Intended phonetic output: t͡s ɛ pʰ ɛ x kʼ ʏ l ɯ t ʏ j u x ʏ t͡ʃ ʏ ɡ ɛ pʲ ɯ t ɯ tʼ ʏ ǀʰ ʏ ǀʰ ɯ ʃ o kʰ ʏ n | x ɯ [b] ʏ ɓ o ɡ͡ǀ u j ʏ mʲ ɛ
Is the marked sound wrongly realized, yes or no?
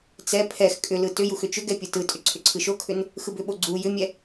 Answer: no